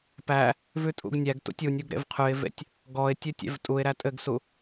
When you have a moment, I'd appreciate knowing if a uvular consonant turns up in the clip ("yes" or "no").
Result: yes